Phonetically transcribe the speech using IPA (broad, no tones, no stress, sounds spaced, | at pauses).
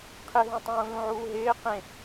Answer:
qʰ ɪ ɦ ũ tˤ ũː l ũ ʕ uː ɦ ɪː q ẽ